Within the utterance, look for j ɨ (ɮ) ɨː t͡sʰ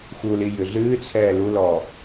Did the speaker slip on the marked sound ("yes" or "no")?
no